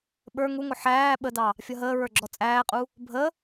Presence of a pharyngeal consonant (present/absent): present